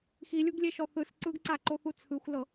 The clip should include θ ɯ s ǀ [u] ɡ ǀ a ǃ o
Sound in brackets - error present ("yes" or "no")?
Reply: yes